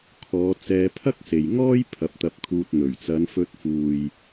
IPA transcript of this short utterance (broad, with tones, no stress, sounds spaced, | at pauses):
kʰ ɔː˨˧ t͡s ɛː˧ pʰ ɐ˥ k̚ s e˨ j ŋ ɔː˥ j pʰ ɐ˨˥ p̚ t̪ ɐ˧ p̚ kʰ uː˧ t̚ n̪ ɵ˨˩ ɥ t͡s ɐ˨˧ n f ɵ˧ t̚ f uː˨ j